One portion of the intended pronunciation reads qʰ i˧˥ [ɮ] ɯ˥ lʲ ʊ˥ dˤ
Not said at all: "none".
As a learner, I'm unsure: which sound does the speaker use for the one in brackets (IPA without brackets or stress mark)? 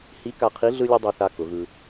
ɮ